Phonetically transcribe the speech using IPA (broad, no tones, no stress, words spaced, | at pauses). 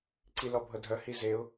ǀilɔbʱɤdʱœ hizeʊ̯